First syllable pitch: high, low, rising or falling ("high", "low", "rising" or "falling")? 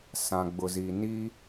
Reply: low